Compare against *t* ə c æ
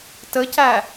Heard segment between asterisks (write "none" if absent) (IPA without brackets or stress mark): t